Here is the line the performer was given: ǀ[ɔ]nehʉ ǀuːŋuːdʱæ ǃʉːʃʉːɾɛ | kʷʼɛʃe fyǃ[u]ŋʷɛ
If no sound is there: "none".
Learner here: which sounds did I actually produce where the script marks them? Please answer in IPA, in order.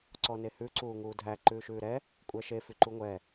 ɔ, u

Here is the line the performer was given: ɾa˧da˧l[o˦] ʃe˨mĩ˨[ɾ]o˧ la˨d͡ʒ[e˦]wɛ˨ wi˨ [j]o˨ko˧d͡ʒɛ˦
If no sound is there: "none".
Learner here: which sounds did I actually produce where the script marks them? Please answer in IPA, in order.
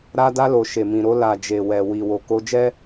o˨, ɾ, e˨, w

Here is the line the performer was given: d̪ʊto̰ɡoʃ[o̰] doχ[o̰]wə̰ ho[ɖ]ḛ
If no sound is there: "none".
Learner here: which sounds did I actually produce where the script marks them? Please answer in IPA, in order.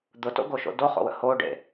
o̰, o̰, ɖ

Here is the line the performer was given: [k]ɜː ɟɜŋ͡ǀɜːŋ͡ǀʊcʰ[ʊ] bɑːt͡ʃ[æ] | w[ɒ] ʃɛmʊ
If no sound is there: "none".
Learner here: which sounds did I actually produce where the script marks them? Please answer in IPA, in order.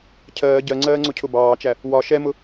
cʰ, ʊ, æ, ɒ

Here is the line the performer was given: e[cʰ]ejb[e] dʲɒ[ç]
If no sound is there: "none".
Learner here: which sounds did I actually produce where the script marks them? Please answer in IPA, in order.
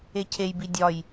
cʰ, i, j

